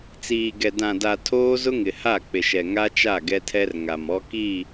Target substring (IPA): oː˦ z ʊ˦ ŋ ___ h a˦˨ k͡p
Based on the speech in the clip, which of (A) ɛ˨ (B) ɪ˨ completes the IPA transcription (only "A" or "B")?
B